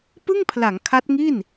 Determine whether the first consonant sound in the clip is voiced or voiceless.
voiceless